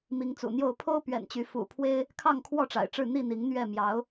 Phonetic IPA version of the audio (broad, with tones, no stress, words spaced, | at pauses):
mi˨˦ŋt͡sṵ˨˩n̪jo˥˨ʊ̯ pʰo˦ʊ̯pɥɛ̰˨˩nt͡ɕy˨˦ fṵ˨˩pʰwe˦ɪ̯ | kʰɑ˥˨ŋkʰwɔ˥˨ʈ͡ʂa̰˨˩ɪ̯ʈ͡ʂɻ̩˥˨ n̪i˥˨n̪i˨˦ŋn̪ɥɛ˥˨ mjɑ˨˦ʊ̯